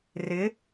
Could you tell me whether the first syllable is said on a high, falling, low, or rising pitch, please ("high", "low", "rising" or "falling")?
rising